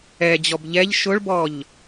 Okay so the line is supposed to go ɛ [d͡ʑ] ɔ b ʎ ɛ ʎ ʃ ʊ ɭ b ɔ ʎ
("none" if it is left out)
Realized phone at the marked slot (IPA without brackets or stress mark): d͡ʑ